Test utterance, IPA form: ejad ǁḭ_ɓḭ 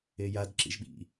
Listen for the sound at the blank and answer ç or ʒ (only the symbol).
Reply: ʒ